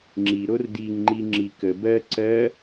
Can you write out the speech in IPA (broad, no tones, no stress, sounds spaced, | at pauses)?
ŋ͡ǁ i ɾ o r d i ŋ ŋ͡ǃ i ŋ͡ǁ i k ə b ɜ ǀ ɜ